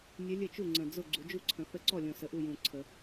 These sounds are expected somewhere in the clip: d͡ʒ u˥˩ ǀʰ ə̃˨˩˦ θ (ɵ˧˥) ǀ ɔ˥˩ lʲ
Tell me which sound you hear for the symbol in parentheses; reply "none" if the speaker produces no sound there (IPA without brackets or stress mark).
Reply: ə˧˥